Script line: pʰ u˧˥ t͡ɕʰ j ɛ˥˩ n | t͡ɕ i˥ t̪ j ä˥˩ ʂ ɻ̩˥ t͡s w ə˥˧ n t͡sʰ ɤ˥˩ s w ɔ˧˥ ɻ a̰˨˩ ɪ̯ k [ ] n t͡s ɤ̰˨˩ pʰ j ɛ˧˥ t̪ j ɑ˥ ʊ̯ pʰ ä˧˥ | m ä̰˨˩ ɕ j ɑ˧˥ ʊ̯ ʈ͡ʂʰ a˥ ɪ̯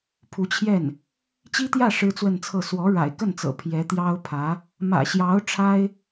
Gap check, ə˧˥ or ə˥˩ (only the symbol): ə˥˩